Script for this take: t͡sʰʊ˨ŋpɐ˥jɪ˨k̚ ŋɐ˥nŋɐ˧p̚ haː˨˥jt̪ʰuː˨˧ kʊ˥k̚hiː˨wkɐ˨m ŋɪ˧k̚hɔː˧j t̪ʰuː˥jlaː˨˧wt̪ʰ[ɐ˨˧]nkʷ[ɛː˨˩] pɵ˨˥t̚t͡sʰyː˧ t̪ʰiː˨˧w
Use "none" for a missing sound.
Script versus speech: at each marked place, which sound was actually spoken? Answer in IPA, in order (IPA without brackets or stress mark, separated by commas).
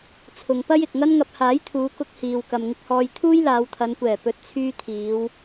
ɐ˨˧, ɛː˨˩